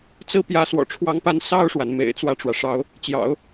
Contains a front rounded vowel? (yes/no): no